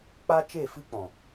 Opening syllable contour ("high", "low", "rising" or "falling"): high